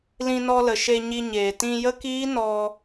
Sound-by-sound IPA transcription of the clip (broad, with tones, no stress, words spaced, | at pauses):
lĩ˧nɔ˧ lə˨ʃe˧ɲi˧ɲeː˨ tĩ˧ jə˦kiː˦ nɔ˧